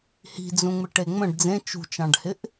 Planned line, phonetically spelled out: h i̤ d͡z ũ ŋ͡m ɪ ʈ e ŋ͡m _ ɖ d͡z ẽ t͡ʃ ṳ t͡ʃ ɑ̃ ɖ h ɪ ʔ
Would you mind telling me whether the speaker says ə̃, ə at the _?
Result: ə̃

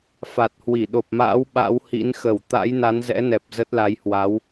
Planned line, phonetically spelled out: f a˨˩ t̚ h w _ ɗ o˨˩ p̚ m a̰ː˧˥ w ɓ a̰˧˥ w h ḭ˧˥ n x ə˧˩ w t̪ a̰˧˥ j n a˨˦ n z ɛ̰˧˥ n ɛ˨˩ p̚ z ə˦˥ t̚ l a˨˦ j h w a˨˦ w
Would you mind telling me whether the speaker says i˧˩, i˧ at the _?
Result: i˧˩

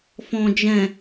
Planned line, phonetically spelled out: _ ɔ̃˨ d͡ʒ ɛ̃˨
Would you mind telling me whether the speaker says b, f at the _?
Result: f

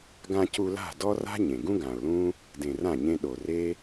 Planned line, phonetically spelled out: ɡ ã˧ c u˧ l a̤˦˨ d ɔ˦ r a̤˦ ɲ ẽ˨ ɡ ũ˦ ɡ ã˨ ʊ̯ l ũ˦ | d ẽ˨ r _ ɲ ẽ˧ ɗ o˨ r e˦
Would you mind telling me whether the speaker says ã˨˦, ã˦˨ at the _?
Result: ã˦˨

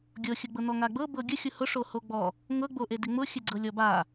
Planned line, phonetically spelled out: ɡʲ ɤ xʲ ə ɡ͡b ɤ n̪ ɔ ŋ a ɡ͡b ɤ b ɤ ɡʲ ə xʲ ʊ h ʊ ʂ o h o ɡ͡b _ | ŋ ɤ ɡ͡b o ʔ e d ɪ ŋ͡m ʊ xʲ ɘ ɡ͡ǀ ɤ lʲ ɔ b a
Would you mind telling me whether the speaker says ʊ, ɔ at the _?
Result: ɔ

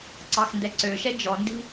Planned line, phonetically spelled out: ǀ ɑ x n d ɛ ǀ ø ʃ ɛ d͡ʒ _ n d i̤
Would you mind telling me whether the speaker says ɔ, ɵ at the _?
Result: ɔ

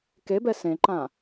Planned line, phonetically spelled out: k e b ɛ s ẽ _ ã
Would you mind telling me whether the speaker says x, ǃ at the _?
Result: ǃ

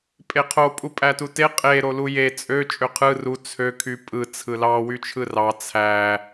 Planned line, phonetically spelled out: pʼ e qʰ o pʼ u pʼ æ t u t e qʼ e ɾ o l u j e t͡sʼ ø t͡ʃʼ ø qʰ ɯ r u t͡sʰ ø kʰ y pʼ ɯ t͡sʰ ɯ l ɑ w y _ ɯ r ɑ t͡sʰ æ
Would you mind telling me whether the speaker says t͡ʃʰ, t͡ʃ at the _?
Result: t͡ʃʰ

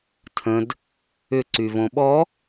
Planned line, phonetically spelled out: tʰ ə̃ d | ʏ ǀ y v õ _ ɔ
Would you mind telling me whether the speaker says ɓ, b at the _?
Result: ɓ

